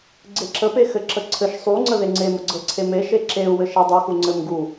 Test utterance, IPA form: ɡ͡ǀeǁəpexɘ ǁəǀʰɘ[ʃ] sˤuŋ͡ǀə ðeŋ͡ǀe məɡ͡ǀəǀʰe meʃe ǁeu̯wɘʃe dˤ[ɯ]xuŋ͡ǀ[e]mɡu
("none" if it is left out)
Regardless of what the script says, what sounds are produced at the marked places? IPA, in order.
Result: ʃ, u, ɘ

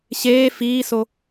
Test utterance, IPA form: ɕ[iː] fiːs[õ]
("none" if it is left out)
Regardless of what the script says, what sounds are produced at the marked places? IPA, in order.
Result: eː, o

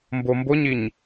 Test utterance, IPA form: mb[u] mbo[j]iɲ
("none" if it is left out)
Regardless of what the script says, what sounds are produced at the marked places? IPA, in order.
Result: o, ɲ

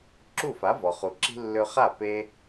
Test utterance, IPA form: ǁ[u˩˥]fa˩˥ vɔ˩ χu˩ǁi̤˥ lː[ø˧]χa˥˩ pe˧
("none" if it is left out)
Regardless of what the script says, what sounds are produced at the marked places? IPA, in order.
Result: u˥˩, ø˧

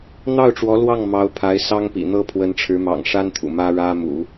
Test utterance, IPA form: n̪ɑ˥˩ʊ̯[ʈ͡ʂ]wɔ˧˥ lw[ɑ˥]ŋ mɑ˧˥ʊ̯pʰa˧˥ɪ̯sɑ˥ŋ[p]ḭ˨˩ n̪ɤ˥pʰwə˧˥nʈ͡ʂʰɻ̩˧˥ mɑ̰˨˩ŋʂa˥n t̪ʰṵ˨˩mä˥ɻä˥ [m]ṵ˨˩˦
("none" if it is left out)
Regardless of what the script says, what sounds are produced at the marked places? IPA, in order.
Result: ʈ͡ʂ, ɑ˥˩, p, m

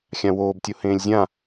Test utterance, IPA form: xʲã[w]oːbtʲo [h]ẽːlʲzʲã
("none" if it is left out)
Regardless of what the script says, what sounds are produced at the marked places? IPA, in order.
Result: w, h

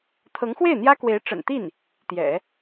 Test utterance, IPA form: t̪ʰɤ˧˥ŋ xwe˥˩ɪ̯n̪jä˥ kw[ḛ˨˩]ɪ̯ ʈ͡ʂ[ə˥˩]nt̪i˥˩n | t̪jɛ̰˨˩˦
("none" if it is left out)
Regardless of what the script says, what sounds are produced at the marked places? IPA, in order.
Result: e˧˥, ə̰˨˩

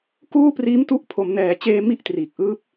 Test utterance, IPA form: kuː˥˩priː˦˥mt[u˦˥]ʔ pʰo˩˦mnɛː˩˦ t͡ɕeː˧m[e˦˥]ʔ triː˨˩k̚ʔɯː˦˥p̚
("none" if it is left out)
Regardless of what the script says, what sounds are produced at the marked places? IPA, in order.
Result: u˦˥, i˦˥

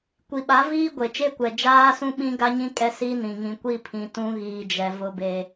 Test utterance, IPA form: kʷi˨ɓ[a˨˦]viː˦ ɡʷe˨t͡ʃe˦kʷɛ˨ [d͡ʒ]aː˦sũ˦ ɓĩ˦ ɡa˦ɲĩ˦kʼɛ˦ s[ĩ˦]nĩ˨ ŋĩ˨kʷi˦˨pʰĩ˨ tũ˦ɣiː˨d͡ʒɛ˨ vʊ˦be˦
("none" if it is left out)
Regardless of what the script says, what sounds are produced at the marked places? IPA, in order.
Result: a˨˦, d͡ʒ, i˦

